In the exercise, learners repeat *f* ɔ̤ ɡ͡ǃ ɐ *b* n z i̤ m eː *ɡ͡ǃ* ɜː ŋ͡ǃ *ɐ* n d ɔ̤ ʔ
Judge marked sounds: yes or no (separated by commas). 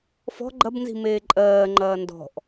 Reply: yes, yes, no, no